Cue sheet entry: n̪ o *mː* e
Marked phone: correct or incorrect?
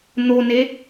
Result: incorrect